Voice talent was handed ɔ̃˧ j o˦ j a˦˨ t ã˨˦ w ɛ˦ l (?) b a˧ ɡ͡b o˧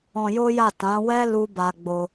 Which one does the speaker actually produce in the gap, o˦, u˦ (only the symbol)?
u˦